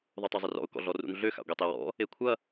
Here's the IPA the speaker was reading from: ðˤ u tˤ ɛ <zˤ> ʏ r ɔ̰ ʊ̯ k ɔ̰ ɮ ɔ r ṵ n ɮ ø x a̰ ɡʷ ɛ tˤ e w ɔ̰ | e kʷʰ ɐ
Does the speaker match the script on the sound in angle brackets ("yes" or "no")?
yes